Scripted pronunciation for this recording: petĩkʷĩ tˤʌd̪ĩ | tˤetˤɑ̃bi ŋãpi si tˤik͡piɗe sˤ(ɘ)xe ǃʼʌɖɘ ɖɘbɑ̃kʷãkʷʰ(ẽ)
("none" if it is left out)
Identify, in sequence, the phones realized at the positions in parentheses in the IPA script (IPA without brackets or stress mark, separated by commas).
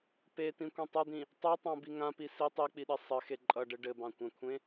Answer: ɘ, ẽ